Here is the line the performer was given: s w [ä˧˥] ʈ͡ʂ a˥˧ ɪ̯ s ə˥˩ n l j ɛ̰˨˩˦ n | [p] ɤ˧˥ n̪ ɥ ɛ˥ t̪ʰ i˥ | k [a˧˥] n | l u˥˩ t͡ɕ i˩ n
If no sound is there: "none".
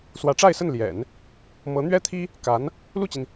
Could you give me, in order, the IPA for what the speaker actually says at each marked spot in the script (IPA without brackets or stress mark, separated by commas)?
ä˧˥, m, a˧˥